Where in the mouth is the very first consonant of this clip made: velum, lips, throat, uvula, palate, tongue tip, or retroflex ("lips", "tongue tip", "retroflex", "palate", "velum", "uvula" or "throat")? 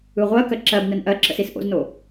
uvula